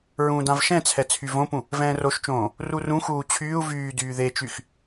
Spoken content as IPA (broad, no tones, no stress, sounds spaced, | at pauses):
ɹ ũː d ã v ʃ ɛ̃ t͡sʰ ɛ t͡sʰ y v õ p ũ | v ɛ̃ː r o ʃ t͡ʃ õː | r u r ũ x uː t͡ɕʰ yː u̯ v yː d yː ð e t͡ʃ y x